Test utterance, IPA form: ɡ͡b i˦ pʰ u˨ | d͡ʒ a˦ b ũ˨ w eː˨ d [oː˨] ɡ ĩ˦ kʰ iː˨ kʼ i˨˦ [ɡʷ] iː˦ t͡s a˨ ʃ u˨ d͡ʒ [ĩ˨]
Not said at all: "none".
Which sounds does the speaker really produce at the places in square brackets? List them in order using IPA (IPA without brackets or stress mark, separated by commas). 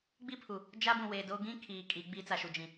oː˦, ɡ͡b, ĩ˨